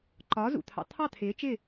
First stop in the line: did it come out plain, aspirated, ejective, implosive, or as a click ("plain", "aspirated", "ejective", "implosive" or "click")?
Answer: click